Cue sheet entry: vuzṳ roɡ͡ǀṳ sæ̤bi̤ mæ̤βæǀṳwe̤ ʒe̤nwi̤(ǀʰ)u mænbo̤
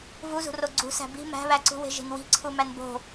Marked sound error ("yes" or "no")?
no